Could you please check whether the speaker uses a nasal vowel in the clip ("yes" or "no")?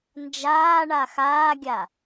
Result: no